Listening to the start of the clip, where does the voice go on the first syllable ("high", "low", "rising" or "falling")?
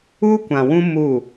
high